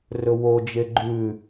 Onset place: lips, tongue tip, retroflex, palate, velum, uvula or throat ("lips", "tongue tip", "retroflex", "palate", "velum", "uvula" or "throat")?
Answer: tongue tip